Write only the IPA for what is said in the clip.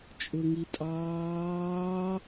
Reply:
t͡ʃʼ ʊ ŋ i tʼ ɑː

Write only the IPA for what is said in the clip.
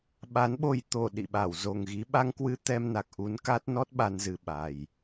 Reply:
ɓ a˨˦ n ɓ o˧ j t̪ o˧˩ ɗ ḭ˧˨ ɓ a˧˩ w z o˨˩ ŋ ɣ i˨˦ ɓ a˧ ŋ k w ɨ˧ t̪ ɛ˧ m n a˨˩ k̚ ʔ u˨˦ n k a˦˥ t̚ n ɔ˦˥ t̚ ɓ a˧ n z ɨ˨˩ ɓ a˨˩ j

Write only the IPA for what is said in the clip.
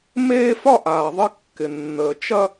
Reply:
m eː˥ f ɒ˥ ʔ aː˨ ðˤ ɪ˦ kː ɪ˨ nː əː˨ t͡ʃ ɐ˥

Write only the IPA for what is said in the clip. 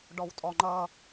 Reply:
ɖ ɔ w tʼ ɔ ŋ͡ǃ ʌː

